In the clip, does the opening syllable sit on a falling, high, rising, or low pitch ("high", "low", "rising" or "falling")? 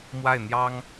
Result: falling